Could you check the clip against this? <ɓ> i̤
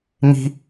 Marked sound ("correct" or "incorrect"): incorrect